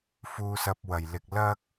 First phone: f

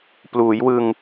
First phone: p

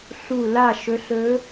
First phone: ɬ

